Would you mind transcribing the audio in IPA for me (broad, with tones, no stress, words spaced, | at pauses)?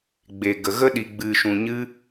ɡ͡be˨ɡə˨ ɣə˧ ɗi˨ɡ͡bɨ˨ʃũ˨ ɲɨ˦